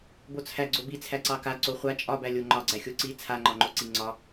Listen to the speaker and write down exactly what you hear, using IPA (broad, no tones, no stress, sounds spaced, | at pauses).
b o t͡sʰ æ ɡ͡ǀ o b i t͡sʰ æ ǀ ɑ k a ǀ o χʷ a t͡ʃʼ ɒ b æ lʲ o ŋ͡ǃ ɒ ɡ͡ǀ æ xʲ o ǀ i t͡sʰ a ŋ͡ǃ ɒ ŋ͡ǃ o ǀ i ŋ͡ǀ ɒ